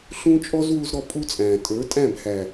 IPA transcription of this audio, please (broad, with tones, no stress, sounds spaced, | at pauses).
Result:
ɬ ũ˦ t͡ʃʼ ɔ˦ z w u˦ z ɾ ɔ˦ pʼ u˦ t͡sʼ æ̃ː˨ tʼ ə˞˨˦ tʼ æ̃˦˨ b h æ˨